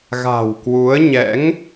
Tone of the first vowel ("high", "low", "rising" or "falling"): low